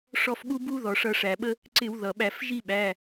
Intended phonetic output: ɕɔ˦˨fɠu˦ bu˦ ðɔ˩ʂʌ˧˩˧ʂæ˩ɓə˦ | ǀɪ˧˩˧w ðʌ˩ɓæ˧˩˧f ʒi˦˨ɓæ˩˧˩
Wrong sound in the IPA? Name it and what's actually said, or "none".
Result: ɕ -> ʂ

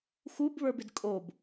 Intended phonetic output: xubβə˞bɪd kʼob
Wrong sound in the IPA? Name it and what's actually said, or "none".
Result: none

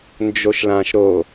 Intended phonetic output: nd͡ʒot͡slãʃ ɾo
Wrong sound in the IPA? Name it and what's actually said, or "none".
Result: t͡s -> ʃ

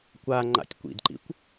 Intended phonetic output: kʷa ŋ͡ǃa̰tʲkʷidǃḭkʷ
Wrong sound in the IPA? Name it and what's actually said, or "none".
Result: i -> ḭ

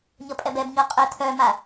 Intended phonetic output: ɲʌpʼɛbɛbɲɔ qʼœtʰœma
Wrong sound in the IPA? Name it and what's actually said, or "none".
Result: none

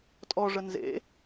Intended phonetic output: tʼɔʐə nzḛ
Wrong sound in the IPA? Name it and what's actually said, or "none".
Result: none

